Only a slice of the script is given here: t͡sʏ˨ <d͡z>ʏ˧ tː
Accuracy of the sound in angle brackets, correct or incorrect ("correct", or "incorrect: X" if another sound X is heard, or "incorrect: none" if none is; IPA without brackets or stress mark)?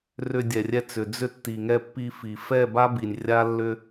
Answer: correct